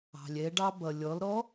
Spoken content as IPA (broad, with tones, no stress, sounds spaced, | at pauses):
ɑ̤˩ lʲ ɛ˩˧ ɖ ɑ˧ b ʌ˩ lʲ ɔ˩˧ l ɾ ɔ˧˥